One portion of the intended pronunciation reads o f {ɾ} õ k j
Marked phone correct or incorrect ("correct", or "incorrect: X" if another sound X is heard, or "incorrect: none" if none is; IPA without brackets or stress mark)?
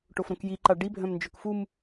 correct